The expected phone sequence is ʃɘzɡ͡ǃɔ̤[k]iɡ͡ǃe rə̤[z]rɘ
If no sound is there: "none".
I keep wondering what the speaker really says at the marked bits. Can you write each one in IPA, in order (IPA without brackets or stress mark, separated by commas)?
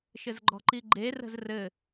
ǃ, z